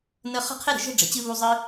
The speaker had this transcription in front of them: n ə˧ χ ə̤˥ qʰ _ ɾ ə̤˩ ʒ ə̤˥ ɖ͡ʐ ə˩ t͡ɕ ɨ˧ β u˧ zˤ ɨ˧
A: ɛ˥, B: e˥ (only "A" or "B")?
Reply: B